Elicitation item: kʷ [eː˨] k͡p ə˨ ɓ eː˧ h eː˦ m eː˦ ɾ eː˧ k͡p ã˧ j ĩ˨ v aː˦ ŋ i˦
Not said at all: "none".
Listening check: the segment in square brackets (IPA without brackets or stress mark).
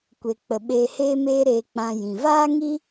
e˨